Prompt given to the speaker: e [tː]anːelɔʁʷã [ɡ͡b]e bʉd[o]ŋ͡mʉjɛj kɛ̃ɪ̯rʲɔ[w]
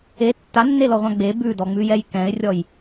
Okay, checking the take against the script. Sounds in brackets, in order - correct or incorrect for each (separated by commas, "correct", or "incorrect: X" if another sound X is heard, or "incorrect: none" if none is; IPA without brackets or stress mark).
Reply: correct, correct, incorrect: ɔ, incorrect: j